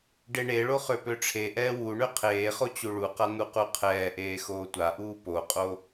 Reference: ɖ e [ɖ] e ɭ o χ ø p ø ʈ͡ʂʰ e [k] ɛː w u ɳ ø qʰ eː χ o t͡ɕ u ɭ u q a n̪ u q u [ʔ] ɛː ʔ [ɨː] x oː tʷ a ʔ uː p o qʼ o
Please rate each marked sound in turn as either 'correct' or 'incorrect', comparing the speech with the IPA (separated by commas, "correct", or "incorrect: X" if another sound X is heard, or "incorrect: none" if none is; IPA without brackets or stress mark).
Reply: incorrect: ɳ, incorrect: ʔ, incorrect: qʰ, incorrect: eː